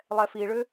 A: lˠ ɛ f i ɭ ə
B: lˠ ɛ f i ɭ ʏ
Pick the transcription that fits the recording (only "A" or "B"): B